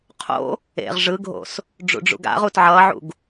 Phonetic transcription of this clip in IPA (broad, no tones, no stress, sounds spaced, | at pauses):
qʰ o̰ | ḛ ʁ ʐ ɯ ɡʱ o̰ s | ɖ͡ʐ ṵ ɖ͡ʐ ṵ ɡ a̰ ʁ u t ʕ ʌ ʕ ṵ ɡ